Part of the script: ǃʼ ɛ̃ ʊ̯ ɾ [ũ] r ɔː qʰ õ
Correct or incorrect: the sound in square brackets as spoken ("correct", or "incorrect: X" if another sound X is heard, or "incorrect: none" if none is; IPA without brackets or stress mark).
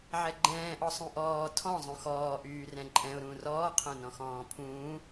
incorrect: ũː